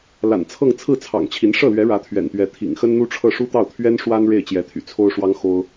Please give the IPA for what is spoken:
l a̰˨˩ n t͡sʰ ɤ˥˧ ŋ t͡sʰ ɹ̩˥˩ t͡sʰ ɑ̰˨˩ ŋ t͡ɕʰ i˧˥ n ʂ ɤ˥˩ l ɥ ɛ˧˥ ɻ ä˧˥ t̪ʰ ɥ ɛ̰˨˩ n t̪ ɥ ɛ˧˥ t̪ʰ ḭ˨˩ ŋ x ə˥ n n̪ u˥ ʈ͡ʂʰ ɤ˥˩ ʂ u˥ t̪ ɑ˥˩ ʊ̯ t̪ʰ ɥ ɛ˥ n ʂ w a˥ n ɻ e˥˩ ɪ̯ t͡ɕ j ɛ˧˥ t̪ʰ y̰˨˩ t͡sʰ o˥ ʊ̯ ʂ w ɑ˥ ŋ x o˥ ʊ̯

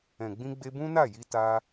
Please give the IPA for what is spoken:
ɛ̃˨ ɡ͡b ĩ˧ ɡ͡b e˧ b ũ˦ n a˦˨ j i˧ t a˦

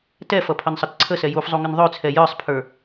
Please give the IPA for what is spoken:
t ɛ f ʌ pʰ ʌ n sˤ ʌ t ǀʰ ə s ɛ j u f zˤ u ŋ ə n ðˤ ø t͡sʰ ɛ j ə˞ sˤ pʰ ə˞

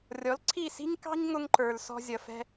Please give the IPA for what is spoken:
rʲ ɔ˩˥ l ǀʰ i˥˩ s i̤˥ ɲ k ɑ̤˥ ɲ ŋ ʊ˧ ŋ ǃ ə˞˩ l s ɔ̤˧ zʲ ʌ˩ f ɛ̤˧

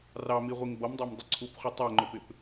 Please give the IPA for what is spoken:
r ɑ m i ʁʷ i ŋ b ʌ m dˤ æ m dˤ ə ǀʰ u p χʷ ə tˤ ɜ ŋ͡ǃ ʊ p ɪ p

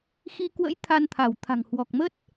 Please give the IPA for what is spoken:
x i˧ k w ə̰˧˥ j t̪ʰ a˧ n t̪ʰ a˧˩ w t̪ʰ a̤˨˩ ŋ h w ɔ˨˩ k̚ m ə˦˥ t̚

